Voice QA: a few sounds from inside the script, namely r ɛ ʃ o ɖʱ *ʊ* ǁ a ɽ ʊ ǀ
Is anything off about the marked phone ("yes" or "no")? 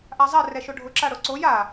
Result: no